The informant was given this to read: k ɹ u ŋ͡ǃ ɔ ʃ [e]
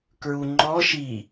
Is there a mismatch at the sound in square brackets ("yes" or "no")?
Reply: yes